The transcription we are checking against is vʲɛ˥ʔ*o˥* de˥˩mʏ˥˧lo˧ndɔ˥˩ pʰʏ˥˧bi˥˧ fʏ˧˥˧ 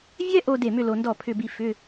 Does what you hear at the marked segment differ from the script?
yes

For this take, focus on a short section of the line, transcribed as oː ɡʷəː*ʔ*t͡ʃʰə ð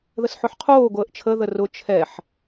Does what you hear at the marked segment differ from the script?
no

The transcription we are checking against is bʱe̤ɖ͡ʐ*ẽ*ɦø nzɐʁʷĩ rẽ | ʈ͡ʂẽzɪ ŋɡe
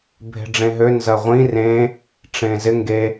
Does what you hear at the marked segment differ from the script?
no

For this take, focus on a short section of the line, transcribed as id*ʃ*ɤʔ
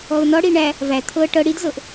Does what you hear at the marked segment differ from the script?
yes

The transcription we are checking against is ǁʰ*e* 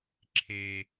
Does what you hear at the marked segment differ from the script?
no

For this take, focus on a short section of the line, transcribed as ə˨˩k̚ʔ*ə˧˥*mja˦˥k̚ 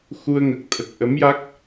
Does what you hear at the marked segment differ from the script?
no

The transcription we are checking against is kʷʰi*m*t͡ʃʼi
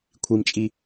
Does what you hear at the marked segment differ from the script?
no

